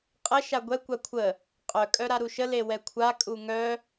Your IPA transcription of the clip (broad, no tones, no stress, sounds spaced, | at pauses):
qʼ ə ʃ a ɡʷ ɛ kʷ a kʷʰ ə | qʼ œ kʼ œ ɾ a ɾ u ʃ ə l e w ɛ kʷʰ a kʼ u ŋ œ